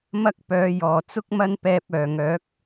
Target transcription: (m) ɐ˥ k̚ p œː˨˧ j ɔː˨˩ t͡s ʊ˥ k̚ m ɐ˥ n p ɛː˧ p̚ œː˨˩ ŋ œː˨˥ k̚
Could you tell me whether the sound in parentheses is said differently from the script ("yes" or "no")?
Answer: no